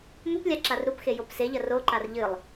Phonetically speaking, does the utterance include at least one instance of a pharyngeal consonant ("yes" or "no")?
no